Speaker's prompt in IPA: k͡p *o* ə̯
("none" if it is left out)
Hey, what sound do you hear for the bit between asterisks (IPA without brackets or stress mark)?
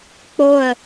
o